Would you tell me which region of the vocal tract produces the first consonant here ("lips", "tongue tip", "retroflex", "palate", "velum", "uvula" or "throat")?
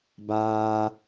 lips